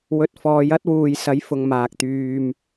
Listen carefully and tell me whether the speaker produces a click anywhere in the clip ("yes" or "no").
no